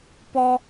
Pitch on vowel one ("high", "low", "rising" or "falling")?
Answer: low